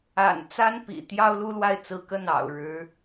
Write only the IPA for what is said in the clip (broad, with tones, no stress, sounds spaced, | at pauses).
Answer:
a̰˨˩ n t͡s a˥ n p ḭ˨˩ t̪ j ɑ˥ ʊ̯ l u˥ l w a˥˩ ɪ̯ t͡s ɹ̩˧˥ k ə˥˩ n ɑ̰˨˩ ʊ̯ ɻ ɻ̩˧˥